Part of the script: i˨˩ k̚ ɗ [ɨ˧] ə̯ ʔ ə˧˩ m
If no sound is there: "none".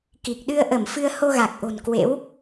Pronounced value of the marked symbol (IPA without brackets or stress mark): ɨ˧